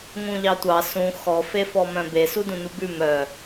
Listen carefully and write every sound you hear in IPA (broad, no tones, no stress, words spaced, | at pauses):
ŋũʎɑtʷɑ sũ xɔfefɔ mœ̃be sudũnubʉ mœ